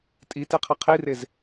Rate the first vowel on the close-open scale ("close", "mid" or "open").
close